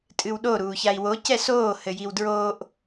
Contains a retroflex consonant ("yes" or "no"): no